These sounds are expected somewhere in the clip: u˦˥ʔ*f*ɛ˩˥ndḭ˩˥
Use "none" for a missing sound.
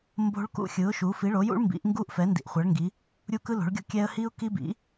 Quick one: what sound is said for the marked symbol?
f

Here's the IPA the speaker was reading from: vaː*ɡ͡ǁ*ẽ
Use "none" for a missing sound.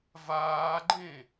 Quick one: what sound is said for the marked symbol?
ɡ͡ǃ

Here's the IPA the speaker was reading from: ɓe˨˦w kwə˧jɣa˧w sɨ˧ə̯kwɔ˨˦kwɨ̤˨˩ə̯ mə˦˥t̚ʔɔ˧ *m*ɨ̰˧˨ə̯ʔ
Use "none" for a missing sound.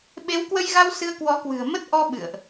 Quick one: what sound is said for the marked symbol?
ɓ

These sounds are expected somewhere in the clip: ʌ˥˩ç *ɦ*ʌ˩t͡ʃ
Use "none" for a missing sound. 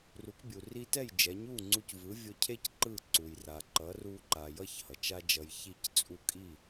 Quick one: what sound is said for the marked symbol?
h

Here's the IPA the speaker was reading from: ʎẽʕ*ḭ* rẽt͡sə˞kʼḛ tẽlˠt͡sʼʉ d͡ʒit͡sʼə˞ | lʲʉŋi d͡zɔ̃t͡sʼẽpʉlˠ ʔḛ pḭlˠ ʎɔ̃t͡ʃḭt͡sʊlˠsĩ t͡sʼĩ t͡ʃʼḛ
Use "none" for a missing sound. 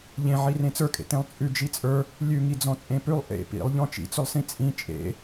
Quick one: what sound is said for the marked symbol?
i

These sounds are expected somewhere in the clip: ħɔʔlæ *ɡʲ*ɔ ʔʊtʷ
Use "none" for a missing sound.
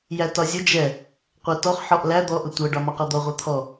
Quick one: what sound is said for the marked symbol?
d̪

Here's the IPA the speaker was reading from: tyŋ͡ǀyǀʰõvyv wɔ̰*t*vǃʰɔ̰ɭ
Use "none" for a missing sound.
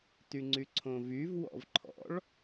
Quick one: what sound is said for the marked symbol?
none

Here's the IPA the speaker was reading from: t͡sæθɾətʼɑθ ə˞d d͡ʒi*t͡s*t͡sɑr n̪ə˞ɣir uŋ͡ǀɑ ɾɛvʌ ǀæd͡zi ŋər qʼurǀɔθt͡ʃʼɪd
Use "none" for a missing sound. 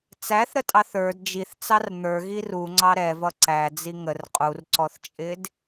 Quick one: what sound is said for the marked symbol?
θ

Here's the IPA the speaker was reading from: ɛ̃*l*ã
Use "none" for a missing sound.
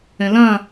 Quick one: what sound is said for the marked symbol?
l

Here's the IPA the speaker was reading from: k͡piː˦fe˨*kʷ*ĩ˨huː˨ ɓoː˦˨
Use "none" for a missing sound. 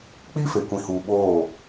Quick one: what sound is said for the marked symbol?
kʷ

